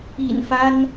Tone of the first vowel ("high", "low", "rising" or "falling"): low